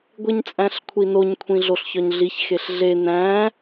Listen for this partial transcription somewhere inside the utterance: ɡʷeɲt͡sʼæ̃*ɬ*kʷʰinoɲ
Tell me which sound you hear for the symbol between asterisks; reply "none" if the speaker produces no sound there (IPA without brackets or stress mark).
ɬ